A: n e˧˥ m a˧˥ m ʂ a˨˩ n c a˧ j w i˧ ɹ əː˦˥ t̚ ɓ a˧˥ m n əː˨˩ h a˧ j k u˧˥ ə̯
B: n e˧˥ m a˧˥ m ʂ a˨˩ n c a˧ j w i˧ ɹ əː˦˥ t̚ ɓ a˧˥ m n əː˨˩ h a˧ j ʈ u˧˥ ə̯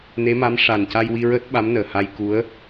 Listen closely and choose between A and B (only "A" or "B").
A